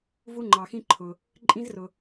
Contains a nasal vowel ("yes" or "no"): yes